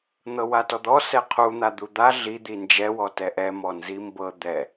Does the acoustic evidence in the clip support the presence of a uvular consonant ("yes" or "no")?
yes